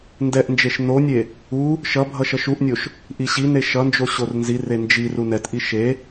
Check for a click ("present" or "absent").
absent